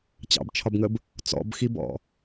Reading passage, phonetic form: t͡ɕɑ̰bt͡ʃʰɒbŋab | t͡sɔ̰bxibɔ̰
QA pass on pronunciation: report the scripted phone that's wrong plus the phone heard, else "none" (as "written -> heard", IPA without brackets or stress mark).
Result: a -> ə